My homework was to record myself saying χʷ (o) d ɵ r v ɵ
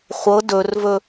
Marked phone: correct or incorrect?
incorrect